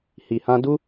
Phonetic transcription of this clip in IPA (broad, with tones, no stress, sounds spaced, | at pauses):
h i˨ h ã˧ d u˦